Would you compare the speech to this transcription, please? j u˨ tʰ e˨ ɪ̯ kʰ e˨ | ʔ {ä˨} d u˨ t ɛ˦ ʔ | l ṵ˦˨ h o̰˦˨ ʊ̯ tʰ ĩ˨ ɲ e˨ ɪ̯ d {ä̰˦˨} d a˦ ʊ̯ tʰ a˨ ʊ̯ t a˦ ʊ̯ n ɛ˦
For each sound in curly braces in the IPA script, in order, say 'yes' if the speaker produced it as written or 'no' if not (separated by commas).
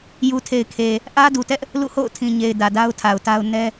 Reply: no, no